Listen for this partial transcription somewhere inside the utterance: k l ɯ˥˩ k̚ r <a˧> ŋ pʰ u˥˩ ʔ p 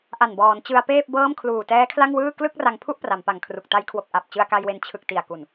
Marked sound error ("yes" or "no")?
no